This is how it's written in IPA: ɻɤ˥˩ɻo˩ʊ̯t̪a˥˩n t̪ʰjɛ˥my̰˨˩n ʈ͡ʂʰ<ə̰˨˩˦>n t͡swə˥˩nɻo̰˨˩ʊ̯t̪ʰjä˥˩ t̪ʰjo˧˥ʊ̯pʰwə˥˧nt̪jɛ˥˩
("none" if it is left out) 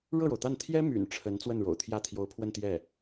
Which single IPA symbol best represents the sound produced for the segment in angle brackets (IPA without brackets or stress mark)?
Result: ə˧˥